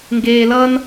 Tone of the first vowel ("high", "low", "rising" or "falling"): low